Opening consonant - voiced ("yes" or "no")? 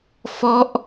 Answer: no